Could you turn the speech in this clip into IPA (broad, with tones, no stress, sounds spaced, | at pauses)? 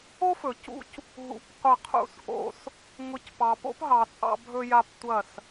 o˦ f ɵ˨ c ṵ˦ c | ɦ ṵ˨ p qʷ ɐ˦˨ qʰ ṵ˧ s ʔ o̰˧ s | ŋ ʊ˧ c p ɑ˨ p o̰˦ p ɦ ɑ˨ t͡sʼ ɑ̰˧ bʱ ɵ˧ j a˧ p tʷ ɐ˦˨ s